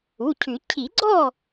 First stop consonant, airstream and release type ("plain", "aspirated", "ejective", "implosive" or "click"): aspirated